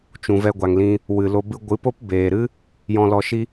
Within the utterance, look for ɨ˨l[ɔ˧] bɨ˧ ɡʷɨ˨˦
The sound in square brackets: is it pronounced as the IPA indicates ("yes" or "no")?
no